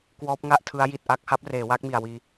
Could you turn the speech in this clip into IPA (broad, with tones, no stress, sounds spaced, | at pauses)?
k w ɔː˦˥ p̚ ŋ a˥˩ ʔ tʰ ɯ˦˥ a̯ j i˨˩ t̚ ʔ a˥˩ k̚ h a˦˥ p̚ r eː˩˦ w aː˦˥ k̚ m i˨˩ a̯ w iː˧